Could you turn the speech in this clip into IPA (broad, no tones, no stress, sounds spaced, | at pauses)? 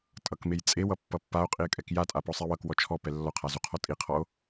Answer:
tʼ ʌ k m e j t͡sʼ e w ʌ pː ʌ pː a o̯ qʼ i e̯ kʼ ɛ k j a tʼ a p ɔ sˤ ɛ w ʌ k w ɔ t͡ʃʰ ɔ p ɛ lː ɔ qʰ a z u qʰ ɔ tʼ i qʰ ɔ o̯